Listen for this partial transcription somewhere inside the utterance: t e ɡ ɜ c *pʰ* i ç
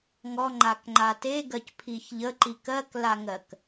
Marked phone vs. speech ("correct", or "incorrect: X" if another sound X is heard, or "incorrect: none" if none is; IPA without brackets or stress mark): correct